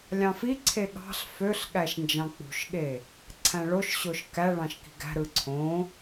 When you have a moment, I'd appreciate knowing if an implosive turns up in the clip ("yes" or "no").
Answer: yes